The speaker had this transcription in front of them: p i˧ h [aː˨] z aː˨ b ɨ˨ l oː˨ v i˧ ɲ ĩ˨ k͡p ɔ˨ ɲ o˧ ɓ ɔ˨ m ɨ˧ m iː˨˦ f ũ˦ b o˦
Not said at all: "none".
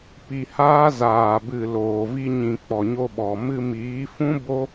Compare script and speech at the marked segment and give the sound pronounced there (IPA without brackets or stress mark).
aː˦